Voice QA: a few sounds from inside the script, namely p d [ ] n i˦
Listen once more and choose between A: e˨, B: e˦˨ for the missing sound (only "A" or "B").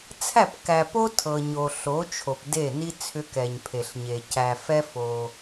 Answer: B